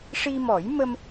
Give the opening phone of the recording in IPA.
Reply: ʂ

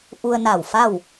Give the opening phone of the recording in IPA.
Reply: ʔ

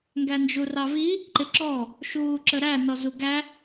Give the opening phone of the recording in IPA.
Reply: ŋ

